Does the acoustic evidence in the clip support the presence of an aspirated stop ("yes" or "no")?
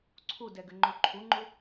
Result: yes